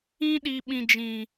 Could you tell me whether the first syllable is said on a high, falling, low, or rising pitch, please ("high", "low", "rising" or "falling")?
high